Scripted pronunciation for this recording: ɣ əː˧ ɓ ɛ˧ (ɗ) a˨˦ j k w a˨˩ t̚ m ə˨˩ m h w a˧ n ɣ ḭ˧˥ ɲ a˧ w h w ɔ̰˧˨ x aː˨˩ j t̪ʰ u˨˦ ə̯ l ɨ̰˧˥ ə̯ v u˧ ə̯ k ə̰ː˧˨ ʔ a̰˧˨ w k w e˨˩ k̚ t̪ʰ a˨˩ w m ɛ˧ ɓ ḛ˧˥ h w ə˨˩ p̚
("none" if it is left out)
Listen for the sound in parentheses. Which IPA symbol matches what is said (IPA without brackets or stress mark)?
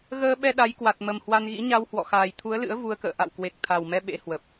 ɗ